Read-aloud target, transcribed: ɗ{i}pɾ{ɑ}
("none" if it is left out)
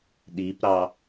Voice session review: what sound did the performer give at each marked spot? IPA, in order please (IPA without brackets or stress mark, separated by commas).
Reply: i, ɑ